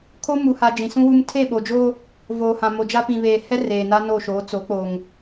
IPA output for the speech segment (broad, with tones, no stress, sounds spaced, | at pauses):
kʰ o˦ m u˨ h a˨ d͡ʒ ĩ˨ s ũ˦ w u˦ m tʰ e˦˨ ɓ o˨ d͡ʒ o˦ | v oː˨ h ã˨ m o˨ d͡ʒ a˦ p ĩ˨ β eː˨ h ɛ˦ r eː˨ n a˦ n o˦˨ ʃ oː˨˦ t͡s o˨˦ k͡p o˨ ŋ